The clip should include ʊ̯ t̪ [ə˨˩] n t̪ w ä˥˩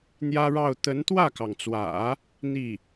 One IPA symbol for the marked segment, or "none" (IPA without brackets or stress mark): ə˧˥